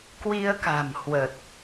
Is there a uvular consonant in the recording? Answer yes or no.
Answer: no